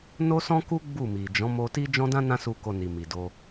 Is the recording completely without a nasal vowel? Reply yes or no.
no